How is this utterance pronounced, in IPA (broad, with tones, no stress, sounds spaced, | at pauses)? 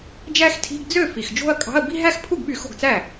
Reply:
d͡ʒ æ˥˧ x tʰ i̤˧˥˧ ɡ d͡z ø˥˩ f i˨˩ x d͡ʒ o̤˥˧ ɐ̯ kʼ ɑ̤˧˥˧ ɐ̯ b i̤˥˧ ɦ æ˥˧ x pʰ u˥˩ ɡ ɓ y˧˩˧ x o̤˥˩ ɡ t͡s æ˥˩